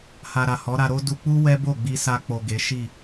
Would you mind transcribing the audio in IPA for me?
h a˨ ɾ a˨ h ɔ˨˦ ɾ a˧ ɾ o˦ d u˧ k͡p u˦ w ɛ˦ b o˦˨ ɡ͡b i˧ s a˧ k͡p o˨ ɡ e˨˦ ʃ i˦˨

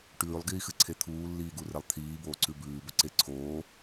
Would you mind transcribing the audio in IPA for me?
ʈ ʉː lˠ ɡ iː x ɨ ǀʰ e t̪ʰ uː lː iː ɡ u r e lˠ t̪ʰ iː b oː ǀ ʉ b ʉː b ɵ ǀ e ǀʰ oː

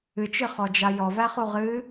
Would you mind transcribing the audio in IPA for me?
ɨ t͡ʃ ɨ χ ɔ d͡ʒ a j ɔ v æ χ u ʁ ɨ

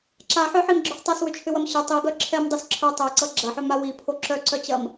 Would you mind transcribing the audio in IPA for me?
ǁ a ħ œ ħ i m ɡ͡ǁ ʏ ħ tˤ a s w ʏ t͡ʃʰ ʏ w ɐ m ɕ ʏ tˤ i ɡ œ ǁʰ ɛ m dˤ ʌ s ǁʰ œ tˤ ɛ ǀ ʌ ɡ͡ǁ ɐ ħ œ m a w i pʰ o ǁ œ ǀ œ t͡ɕ ɐ m

